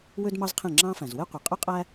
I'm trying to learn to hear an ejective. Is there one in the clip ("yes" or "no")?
yes